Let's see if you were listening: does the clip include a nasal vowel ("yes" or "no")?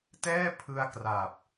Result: no